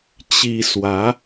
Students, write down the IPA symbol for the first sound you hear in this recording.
t͡ɕ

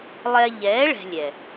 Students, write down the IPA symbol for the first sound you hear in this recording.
lˠ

